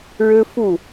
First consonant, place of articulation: retroflex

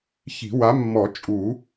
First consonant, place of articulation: palatal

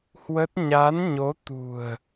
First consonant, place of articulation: glottal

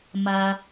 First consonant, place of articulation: labial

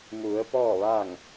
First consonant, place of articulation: labial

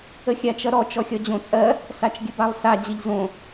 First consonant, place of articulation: velar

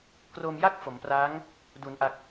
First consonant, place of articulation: velar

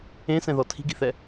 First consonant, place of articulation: alveolar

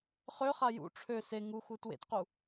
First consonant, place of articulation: uvular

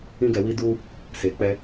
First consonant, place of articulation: velar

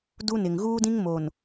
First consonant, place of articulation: alveolar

